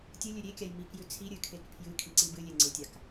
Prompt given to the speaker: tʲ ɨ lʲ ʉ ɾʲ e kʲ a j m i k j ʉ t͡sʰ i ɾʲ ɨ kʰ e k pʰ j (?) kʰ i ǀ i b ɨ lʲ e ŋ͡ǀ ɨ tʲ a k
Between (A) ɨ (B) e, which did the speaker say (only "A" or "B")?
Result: A